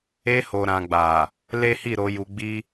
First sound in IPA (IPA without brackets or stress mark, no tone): e